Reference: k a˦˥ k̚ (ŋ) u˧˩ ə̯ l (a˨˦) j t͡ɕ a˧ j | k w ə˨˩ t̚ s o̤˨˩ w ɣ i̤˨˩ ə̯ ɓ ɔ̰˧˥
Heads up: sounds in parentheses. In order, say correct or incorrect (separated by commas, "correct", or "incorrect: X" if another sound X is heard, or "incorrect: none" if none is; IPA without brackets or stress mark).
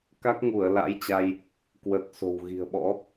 correct, incorrect: a̰˧˥